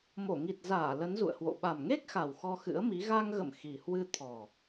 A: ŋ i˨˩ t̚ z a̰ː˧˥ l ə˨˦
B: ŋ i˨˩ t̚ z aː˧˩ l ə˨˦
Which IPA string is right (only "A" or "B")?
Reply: B